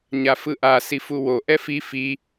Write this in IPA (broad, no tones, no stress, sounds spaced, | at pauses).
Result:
ɲ a f ɯ ʔ a s i f u w o ʔ ɛ f i f i